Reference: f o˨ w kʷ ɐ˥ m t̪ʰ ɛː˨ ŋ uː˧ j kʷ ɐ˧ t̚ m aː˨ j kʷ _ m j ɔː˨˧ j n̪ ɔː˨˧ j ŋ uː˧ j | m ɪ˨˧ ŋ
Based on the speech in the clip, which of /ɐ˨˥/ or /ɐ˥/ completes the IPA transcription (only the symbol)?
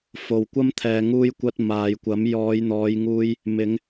ɐ˨˥